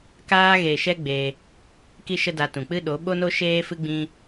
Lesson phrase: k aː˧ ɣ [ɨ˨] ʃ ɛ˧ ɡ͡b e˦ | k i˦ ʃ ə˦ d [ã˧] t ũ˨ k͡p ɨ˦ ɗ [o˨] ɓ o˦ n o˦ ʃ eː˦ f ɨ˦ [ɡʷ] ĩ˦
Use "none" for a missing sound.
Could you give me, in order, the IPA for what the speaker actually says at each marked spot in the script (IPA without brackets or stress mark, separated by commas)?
e˨, a˧, o˨˦, ɡ͡b